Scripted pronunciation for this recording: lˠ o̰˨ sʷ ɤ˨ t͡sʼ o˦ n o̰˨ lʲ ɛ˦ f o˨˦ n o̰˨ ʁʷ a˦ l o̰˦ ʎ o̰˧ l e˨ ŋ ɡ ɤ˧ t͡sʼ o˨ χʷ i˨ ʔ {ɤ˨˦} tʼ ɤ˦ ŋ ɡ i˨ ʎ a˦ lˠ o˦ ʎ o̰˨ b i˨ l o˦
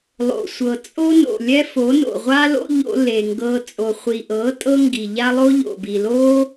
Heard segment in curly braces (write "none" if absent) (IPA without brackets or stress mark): ɤ˨˦